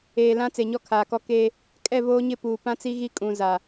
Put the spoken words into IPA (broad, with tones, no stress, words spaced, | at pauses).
eː˨lã˦ t͡se˨ɲɔ˦kʰaː˨kɔ˦ keː˦ | kʼɛ˦˨voː˦ɲɪ˦˨ puː˨ pã˦t͡si˦ɣi˦ kʼũ˨ za˨